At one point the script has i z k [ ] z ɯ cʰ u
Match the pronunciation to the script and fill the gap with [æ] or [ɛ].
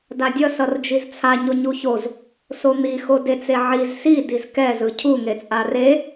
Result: ɛ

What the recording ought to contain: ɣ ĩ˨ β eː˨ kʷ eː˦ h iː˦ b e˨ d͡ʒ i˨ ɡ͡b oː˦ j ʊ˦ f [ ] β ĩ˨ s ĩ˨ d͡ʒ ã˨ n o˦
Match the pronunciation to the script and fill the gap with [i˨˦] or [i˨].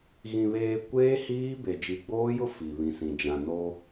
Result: i˨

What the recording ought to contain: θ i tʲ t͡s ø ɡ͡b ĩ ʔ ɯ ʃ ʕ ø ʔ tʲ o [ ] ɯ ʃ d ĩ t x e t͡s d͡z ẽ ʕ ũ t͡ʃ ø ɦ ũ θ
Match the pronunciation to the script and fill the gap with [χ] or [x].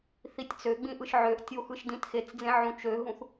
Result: x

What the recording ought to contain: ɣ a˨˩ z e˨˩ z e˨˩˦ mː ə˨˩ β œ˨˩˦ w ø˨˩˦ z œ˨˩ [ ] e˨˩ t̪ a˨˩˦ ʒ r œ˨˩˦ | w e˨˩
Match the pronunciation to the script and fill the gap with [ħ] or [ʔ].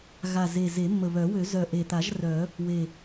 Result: ʔ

